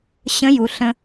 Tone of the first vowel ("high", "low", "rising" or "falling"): rising